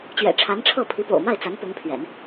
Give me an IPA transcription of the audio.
t͡ɕ ɥ ɛ̰˨˩ ʈ͡ʂʰ a˧˥ n ʈ͡ʂʰ ɤ˥˩ pʰ i˧˥ p o̰˨˩ ʊ̯ m a˥˩ ɪ̯ t͡s a˧˥ n p ʊ˧˥ ŋ pʰ ɥ ɛ̰˨˩˦ n

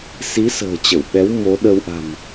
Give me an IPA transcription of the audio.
s i˨˦ s ə̤ː˨˩ t͡ɕ ə˧˩ w ɓ ɛ˨˦ w m o˨˦ ɗ ə˧ w ʔ a̤˨˩ m

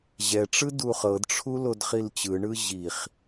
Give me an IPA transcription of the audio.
ʑ ɛ ʈ͡ʂ ɯ d u χ ɤ d ʈ͡ʂʰ u l o d χ i l t͡ɕ ɯ ɳ ɯ ʑ i χ

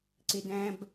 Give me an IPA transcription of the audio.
ǀ ɪ˨ d æ̃˨ b

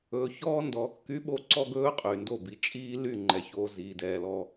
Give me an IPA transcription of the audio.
ɵː˨ ç ɔː˦ n d ɔ˨˦ kː y˦ ɓ o˦˨ ǀ ɔ˦ ɡ ɵː˦ qʼ y˨ n d o˦˨ b i˨ t͡ʃʼ iː˦ l y˦˨ ŋ͡ǃ ɛ˨ ç oː˨ z iː˨ d ɛː˨ l ɔ˦

